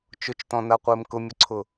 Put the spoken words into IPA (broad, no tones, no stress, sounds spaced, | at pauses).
t͡ʃ ʊ t͡ʃ t ɔ̃ n a qʷ ɪː m k ʊ mʲ ʊ ǀʰ ʊ